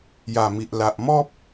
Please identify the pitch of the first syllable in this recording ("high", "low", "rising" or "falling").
low